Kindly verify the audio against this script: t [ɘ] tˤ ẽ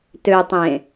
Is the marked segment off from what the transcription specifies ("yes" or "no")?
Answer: yes